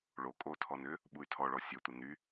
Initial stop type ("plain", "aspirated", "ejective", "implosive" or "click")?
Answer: ejective